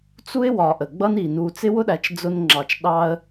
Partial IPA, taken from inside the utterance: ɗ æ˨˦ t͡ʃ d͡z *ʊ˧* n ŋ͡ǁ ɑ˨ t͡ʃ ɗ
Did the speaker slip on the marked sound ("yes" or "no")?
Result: no